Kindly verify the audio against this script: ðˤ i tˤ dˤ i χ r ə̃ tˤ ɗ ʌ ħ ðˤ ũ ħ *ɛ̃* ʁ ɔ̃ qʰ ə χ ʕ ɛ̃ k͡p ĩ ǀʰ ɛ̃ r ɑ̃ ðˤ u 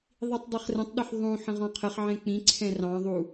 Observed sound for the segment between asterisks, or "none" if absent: ə̃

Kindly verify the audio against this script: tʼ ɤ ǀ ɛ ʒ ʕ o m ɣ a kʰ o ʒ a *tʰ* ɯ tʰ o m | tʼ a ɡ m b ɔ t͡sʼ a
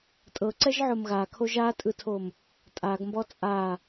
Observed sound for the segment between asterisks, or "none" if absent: tʼ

